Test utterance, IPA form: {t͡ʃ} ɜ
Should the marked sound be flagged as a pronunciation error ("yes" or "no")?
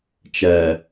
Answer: no